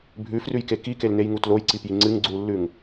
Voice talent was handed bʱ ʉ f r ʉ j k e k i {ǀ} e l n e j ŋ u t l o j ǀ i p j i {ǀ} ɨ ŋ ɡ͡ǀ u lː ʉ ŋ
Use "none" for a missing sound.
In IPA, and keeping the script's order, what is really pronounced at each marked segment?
k, ŋ͡ǀ

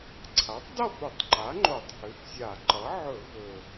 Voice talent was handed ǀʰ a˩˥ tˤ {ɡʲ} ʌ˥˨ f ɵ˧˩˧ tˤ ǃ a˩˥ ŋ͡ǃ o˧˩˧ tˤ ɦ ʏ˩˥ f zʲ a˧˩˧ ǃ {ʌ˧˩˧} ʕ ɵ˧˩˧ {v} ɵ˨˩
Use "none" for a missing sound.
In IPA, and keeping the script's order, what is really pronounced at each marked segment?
d, ʌ˩˥, v

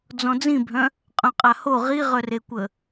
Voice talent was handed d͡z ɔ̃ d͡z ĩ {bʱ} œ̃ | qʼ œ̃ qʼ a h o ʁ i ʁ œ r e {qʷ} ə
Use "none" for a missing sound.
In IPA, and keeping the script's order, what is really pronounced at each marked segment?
bʱ, kʷ

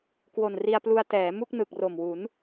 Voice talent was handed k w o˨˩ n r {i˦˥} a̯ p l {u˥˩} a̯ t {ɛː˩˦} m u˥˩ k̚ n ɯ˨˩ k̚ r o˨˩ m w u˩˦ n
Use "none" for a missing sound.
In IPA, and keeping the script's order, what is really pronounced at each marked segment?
i˧, u˧, ɛː˩˦

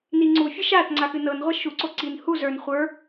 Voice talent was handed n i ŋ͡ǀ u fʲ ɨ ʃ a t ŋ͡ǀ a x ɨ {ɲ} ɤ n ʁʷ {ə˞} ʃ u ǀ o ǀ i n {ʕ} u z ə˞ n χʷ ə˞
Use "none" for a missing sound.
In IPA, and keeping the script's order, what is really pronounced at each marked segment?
n, ɐ, h

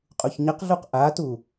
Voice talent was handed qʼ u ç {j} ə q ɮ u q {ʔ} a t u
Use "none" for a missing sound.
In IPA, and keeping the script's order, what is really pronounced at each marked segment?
ɲ, ʔ

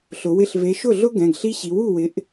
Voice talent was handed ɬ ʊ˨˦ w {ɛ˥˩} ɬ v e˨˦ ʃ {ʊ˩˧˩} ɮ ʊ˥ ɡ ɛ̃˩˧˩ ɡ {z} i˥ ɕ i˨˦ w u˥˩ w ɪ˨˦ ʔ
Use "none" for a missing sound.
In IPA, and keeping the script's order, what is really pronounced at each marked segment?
ɪ˥˩, ʊ˥˩, ɬ

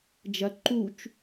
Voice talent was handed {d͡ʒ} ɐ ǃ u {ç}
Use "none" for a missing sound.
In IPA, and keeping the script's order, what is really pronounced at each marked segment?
d͡ʒ, t͡ʃ

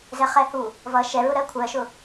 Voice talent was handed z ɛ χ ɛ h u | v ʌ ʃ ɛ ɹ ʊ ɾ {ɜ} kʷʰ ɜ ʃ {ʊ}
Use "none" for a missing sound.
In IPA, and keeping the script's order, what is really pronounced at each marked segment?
ɜ, ʊ

